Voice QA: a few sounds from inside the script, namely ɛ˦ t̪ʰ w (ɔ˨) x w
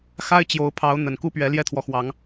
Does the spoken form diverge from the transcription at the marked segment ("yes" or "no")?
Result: no